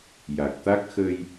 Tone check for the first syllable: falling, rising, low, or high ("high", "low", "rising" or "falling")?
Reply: low